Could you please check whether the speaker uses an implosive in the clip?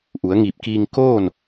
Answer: no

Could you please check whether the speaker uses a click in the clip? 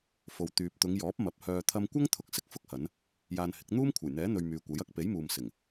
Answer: no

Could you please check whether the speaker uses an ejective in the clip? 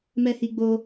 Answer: no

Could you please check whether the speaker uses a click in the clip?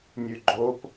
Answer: yes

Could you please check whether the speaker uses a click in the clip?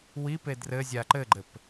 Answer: yes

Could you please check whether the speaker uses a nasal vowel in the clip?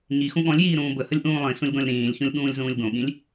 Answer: yes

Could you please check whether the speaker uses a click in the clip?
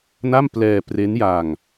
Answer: no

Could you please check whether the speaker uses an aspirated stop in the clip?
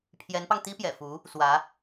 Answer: yes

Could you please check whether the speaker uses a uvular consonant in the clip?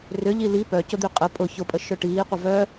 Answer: yes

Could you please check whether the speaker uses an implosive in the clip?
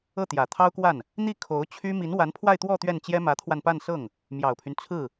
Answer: no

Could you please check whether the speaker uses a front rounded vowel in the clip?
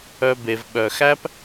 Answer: yes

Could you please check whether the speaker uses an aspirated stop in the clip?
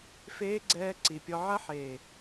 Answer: no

